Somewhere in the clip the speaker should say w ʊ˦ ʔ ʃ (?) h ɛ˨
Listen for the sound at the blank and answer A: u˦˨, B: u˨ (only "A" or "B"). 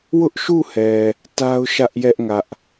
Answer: A